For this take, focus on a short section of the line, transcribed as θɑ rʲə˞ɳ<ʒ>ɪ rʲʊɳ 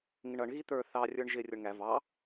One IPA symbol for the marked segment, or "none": ʒ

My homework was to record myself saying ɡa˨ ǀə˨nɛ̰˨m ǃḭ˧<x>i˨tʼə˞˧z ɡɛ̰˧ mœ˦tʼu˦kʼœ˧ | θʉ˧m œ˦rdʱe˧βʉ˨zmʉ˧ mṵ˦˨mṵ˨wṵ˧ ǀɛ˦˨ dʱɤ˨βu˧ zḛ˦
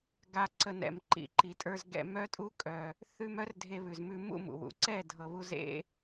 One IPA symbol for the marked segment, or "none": ǃ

